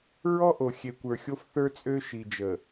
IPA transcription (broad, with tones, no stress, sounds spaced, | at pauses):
ɹ ɔ˦ ʔ o˨ xʲ e˨ kʷ ə˞˨ xʲ o˦ f θ ə˞˦ t͡sʼ ø˦ ʃ i˨ d͡ʒ ə˨